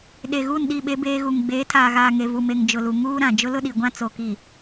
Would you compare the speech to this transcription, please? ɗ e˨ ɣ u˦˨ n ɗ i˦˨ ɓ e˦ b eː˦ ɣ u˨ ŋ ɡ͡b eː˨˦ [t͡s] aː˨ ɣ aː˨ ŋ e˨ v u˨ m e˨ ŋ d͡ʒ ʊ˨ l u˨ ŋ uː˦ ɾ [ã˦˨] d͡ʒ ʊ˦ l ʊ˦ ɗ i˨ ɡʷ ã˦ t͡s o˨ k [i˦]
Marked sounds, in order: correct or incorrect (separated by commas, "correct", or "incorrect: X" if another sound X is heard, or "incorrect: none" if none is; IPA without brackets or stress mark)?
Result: incorrect: tʰ, incorrect: ã˨, incorrect: i˨